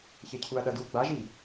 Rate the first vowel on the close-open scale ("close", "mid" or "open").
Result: mid